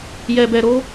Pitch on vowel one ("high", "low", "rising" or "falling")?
low